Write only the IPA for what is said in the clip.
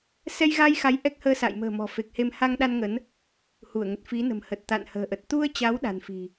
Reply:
sɛ˧jɣa˧jxa˨˦j ʔɛ˦˥k̚həː˧ sa̰˧˨jmə̤ː˨˩ mɔ̤˨˩fe˨˩k̚he˧m ha˧ŋɗa˧nŋə˨˦n | hu˧˩ə̯ŋə˨˩t̚ fi˨˦nə̤˨˩mhə˨˩t̚ t̪a̰˧˨nhə̤ː˨˩ʔə˨˩t̚ t̪u˧ə̯t͡ɕa˨˦w ɗa̤˨˩nfi̤˨˩

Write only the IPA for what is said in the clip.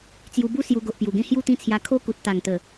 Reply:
t͡sju˧bu˦ sju˧ ɡo˨ʔpju˨˩ɡẽ˦ hju˥˧t̪ĩ˥˧t͡sʰja˧ kʰo˦ku˨t̚ t̪a˨˩ŋt̪ə˨˩

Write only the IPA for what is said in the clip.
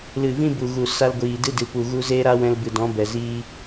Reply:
lɨ˨vĩ˦bu˨ ɣu˨ sa˧lɡʷiː˨ dɨ˦dɨ˨pu˨ ɣu˧zeː˦ɾa˦ wɛ̃˧lbɨ˨dɔ̃˨˦ bɛ˨ziː˦

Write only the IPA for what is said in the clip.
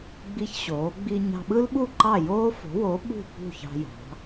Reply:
ɡ͡bi˧çɕoː˩˧ɡ͡bi˧ ɲɑ̤˧ɓɯ˥lɓu˥˨ ǃɑ˥˨joː˥fo̤˨˥wo˨˥ ɓṳ˥˨pṳ˥˨çɑ̤˧jɑ̤˩˧

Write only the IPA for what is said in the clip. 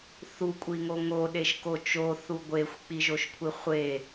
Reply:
θukʷʼiŋo ŋoɗeʃko t͡ʃoθu ɡʷexʷk͡piʒoʃkʷʰi χʷe

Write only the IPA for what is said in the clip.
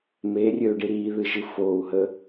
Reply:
meːrʲøːɖi ɾiːðɨʒɨ foːu̯ɦə

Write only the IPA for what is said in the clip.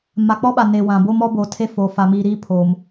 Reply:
ma˨k͡pɔ˦ɓa˨ ne˨ wã˨bo˦m ɔ˦bo˨tʰe˦ foː˨fa˨ miː˨ɾiː˦ pʰo˨m

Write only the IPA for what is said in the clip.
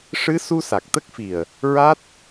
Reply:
ʂɨ˧˥ su˧sa˨˩k̚t̪ə˦˥k̚fi˨˩ə̯ | ɹa˦˥t̚

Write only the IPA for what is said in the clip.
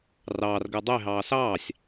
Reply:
rɑːrɡəː dˤe ɦɑːsɑːsʲ

